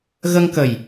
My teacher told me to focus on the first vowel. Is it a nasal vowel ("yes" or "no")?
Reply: no